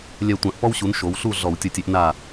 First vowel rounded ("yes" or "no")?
no